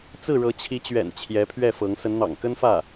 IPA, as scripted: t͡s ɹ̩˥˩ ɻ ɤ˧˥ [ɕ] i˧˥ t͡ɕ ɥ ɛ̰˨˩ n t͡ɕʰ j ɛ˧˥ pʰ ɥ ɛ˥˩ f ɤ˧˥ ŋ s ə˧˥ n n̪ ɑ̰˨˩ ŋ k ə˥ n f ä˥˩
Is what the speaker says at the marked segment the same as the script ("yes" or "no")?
no